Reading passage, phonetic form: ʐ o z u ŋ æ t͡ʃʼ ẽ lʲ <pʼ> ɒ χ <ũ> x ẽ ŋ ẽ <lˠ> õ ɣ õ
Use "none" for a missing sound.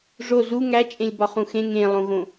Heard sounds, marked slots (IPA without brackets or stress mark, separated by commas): b, ũ, lˠ